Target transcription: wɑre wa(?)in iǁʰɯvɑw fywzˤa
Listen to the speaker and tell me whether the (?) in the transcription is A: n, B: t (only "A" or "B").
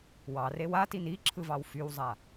B